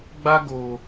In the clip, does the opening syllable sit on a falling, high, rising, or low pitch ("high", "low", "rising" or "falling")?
high